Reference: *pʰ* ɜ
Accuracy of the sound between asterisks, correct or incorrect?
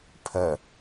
correct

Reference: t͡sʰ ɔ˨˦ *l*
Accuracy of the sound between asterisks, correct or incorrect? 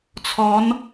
incorrect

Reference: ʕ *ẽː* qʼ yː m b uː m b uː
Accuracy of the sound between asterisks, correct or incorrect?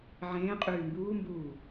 correct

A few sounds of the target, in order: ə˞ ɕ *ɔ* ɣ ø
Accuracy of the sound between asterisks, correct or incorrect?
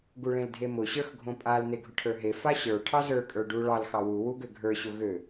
incorrect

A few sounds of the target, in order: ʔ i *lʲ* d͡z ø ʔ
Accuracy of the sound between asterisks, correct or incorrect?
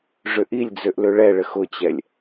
correct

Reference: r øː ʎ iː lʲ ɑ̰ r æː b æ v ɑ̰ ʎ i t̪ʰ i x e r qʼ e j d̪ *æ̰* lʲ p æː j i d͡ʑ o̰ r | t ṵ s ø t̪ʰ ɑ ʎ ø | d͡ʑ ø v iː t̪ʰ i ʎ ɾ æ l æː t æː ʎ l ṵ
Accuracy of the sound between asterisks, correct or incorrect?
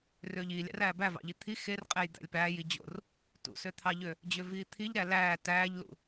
correct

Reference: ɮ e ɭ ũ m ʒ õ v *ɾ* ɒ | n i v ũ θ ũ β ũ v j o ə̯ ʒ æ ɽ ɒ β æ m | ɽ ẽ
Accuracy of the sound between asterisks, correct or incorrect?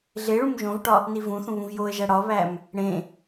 incorrect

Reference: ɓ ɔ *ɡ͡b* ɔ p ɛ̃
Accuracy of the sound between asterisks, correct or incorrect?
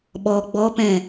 correct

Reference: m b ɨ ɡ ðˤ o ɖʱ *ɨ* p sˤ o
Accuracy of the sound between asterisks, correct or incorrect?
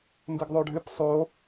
correct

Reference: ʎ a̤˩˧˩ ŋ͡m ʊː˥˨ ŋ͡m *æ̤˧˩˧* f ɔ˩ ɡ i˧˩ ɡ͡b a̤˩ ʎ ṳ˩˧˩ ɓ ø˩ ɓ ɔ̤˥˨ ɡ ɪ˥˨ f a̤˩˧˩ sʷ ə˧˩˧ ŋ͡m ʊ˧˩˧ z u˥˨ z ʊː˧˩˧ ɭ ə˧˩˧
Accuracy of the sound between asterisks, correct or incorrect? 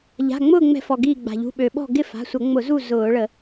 incorrect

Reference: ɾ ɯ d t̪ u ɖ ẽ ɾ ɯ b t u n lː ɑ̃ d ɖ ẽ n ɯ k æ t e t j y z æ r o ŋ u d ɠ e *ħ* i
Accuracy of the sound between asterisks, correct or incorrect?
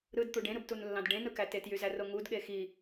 incorrect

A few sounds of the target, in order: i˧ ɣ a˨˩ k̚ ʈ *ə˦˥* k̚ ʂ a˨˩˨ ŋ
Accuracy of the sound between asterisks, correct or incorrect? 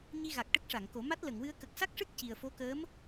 correct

